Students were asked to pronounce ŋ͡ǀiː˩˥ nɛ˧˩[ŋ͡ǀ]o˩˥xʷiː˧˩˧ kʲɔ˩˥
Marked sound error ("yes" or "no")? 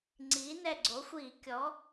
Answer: yes